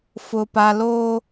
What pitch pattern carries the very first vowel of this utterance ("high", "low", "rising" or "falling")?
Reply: high